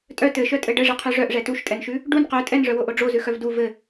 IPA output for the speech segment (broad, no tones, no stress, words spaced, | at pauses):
tʼœ tɘʃœtʼɘ ɖɘʐɘqʰʉ ʐœʔʐɛ tuʃtʼɛnʃʉ | ɖun qœ tʼɛnʐœwoʔo ɖ͡ʐozʉxœv du vɘ